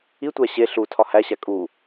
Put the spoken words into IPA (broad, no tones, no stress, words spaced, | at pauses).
itʷæ ɕe ɬu tʰɒhæɕæ kʼu